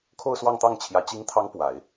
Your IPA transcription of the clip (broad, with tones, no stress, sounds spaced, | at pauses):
kʰ o˥˧ ʊ̯ s w ɑ˥˧ ŋ t̪ ɑ˥˩ ŋ t͡ɕʰ j ä˧˥ t͡ɕ i˧˥ ŋ t̪ʰ ɑ˧˥ ŋ p w a˨˩˦ ɪ̯